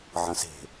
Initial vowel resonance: nasal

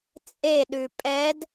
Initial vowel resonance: oral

